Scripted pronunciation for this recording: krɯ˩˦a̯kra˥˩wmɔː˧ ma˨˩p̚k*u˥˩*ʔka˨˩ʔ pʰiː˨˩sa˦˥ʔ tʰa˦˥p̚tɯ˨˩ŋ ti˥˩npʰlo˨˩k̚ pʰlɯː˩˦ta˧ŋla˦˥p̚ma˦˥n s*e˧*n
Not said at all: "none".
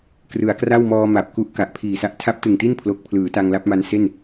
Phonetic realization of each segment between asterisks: u˦˥, e˥˩

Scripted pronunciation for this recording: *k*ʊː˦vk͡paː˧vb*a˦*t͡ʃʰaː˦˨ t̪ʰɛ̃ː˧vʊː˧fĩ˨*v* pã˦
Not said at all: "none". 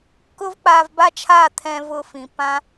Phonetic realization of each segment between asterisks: k, a˦, none

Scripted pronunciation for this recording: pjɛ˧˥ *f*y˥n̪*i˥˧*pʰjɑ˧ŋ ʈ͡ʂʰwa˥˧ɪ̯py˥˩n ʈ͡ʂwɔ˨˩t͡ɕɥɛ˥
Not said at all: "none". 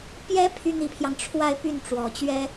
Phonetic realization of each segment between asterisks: pʰ, i˧˥

